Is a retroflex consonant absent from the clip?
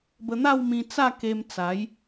yes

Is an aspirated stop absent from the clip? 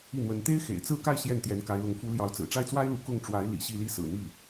yes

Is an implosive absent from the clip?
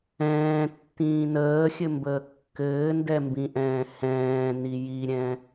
yes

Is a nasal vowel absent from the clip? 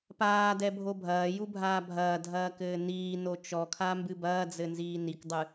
yes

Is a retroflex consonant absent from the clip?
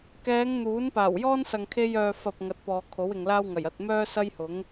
yes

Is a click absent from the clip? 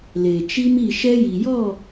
yes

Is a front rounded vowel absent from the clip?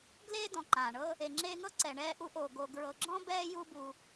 yes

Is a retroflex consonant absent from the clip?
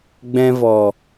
yes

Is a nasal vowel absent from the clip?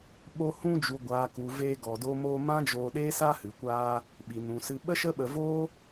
no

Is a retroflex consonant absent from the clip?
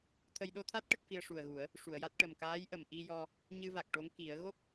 no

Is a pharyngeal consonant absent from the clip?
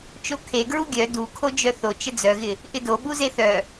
yes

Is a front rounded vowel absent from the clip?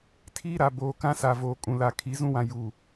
yes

